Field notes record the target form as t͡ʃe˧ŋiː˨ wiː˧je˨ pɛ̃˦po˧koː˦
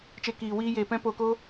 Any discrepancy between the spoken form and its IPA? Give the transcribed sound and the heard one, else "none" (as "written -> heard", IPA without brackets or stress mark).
ŋ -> k